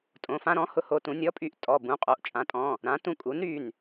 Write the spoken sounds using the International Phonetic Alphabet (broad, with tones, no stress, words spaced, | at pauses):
tʼõ˩˧˩fã˧ɾɔ̃˩˥ hʊ˧ho˧tũ˩˥ nʲɔ˩˥pʼy˩˥ʔ tʼɔ˩˧˩ bũ˩˧˩qʼo˩˧˩ʔt͡ʃʼã˩˥tʼɔ̃˩˧˩ | ɾã˩˥tũ˧ kʼu˩˥nɾy˩˧˩n